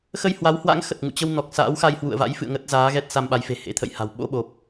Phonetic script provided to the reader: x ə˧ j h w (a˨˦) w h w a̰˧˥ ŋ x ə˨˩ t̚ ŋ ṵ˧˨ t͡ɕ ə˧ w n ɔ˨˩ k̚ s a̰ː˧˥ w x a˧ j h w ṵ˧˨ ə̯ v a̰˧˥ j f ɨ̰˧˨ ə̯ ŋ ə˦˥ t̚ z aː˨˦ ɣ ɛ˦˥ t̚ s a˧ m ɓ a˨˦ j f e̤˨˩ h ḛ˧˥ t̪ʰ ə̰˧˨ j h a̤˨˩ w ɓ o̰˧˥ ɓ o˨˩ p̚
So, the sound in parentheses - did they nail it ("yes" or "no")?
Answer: yes